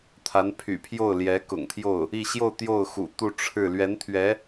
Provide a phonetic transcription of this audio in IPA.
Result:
t̪ʰ a˧˥ n pʰ y̰˨˩ pʰ j o˥˩ ʊ̯ l j ɛ˧˥ k ʊ̰˨˩ ŋ t̪ʰ j o˥˩ ʊ̯ | i˥˧ ɕ j o˥˧ ʊ̯ t̪ j o˥˩ ʊ̯ x ṵ˨˩ t̪ u˥˧ ʈ͡ʂʰ ɻ̩˥˩ l ɥ ɛ˧˥ n t̪ʰ ɥ ɛ˧˥

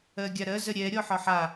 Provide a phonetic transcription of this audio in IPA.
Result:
ɜ ɡʲ a ɾ ɜ z ə ɾʲ ɛ ɾʲ ɔ ħ ɒ ħ a

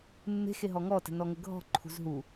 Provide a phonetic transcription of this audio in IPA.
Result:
mː e̤ x e ɦ ɔ ŋ ɔ t ə̤ n ɔ ŋ ə ɡʱ ɔ̤ ǃʰ ṳ z ɦ u

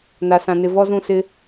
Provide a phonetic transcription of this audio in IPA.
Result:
n a˨ s ã˨ n ɪ˨ v ɔ˦ z ũ˦˨ s ɪ˦

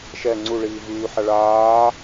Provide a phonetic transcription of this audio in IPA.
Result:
ʃ ɛ ŋ͡ǀ u ɭ iː v yː ħ a ɭ aː

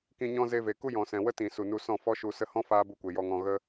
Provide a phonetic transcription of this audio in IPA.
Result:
k ĩ˧ ɲ ɔ̃˦ z e˧ v e˨ k u˦ j ɔ̃˨ s ɛ̃˨ w ə˦ t ĩ˨ s u˨ n u˧ s ɔ̃˦˨ f ɔ˦ ʃ u˧ s ə˧ h ɔ̃˦ f aː˦ b u˧ kʷ e˨ j ɔ˧ ŋ ɔ̃˧ ɣ ə˦

